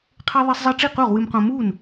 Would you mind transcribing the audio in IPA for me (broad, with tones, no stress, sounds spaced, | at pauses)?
qʰ e˧ ðˤ e˧ sˤ zˤ e˧ ʈ͡ʂ i˥˩ q u˥˩ ʁ w ɨ˧ m q õ˧ m u˥˩ n